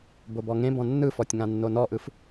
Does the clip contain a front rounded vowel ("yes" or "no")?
no